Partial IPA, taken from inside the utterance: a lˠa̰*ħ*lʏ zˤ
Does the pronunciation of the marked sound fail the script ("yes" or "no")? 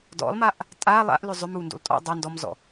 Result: yes